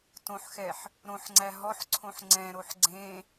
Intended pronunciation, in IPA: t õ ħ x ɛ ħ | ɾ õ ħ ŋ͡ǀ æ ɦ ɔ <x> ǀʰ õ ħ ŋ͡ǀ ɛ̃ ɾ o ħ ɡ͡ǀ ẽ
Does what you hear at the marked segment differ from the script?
yes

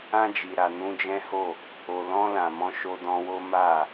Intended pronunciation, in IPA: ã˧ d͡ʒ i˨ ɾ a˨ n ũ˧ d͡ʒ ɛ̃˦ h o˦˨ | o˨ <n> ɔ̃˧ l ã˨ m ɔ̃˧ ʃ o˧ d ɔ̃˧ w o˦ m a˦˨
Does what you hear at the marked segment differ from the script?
yes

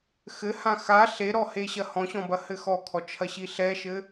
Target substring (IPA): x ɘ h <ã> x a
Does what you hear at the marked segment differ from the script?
no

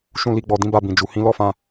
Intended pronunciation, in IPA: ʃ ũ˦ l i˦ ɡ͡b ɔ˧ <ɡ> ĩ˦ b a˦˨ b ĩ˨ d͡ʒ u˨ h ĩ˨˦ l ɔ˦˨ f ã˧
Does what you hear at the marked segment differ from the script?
yes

